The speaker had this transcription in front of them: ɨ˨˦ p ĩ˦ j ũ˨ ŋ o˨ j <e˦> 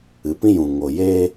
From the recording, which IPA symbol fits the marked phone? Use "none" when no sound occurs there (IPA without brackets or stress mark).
e˦